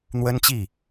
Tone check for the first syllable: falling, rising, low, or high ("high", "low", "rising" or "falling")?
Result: high